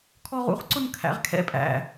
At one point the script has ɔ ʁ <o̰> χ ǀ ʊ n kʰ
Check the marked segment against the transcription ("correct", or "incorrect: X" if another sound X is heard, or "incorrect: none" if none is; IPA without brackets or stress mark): incorrect: ṵ